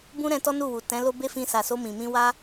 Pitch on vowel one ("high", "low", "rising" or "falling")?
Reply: high